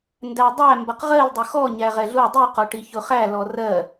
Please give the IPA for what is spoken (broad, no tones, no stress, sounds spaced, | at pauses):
n d æ dˤ æ m b ʌ q ʁ ɜ l dˤ ʊ x ɔ ɲ æ ʁ ɛ ɮ u dˤ i q ɔ ʈ i ç ʊ χ æ l ɔ r ɜ